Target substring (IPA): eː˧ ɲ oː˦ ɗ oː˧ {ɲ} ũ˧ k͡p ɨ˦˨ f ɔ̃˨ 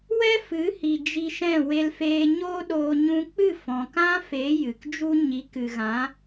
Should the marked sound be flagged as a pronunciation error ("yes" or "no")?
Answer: no